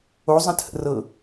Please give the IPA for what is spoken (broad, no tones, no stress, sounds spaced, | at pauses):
o zˤ ə̃ t h ə̰ r ɤ